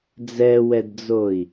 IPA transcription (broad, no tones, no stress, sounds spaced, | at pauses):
d͡z ɛ w ɛ d d͡z o i̯